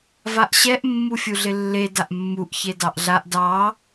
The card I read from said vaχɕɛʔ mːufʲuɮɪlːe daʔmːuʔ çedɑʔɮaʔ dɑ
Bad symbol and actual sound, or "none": χ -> ʔ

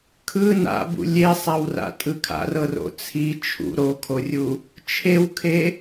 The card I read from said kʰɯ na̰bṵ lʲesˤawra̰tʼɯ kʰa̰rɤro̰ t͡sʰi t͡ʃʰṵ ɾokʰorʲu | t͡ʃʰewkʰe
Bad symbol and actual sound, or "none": none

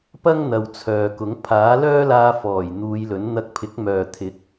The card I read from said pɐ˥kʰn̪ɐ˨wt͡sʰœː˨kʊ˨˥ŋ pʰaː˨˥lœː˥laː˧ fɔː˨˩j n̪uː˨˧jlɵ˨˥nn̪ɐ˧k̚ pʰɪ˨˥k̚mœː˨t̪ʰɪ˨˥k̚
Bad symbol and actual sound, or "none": kʰ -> ŋ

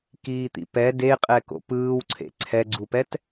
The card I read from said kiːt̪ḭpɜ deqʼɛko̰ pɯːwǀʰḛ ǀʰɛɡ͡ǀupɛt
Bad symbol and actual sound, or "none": ɜ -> ɛ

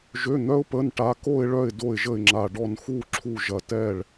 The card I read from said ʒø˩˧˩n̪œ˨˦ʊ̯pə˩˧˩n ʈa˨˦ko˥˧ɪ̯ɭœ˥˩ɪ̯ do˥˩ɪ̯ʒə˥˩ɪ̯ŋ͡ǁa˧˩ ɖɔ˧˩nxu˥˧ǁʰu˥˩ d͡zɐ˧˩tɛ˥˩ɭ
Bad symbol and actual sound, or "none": d͡z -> ʒ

